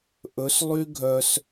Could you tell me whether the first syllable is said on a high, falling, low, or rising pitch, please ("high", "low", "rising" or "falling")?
rising